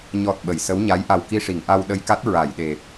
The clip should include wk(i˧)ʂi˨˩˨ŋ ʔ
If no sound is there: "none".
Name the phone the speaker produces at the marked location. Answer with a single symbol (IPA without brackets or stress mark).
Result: i˧